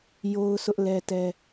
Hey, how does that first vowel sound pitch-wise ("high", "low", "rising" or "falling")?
high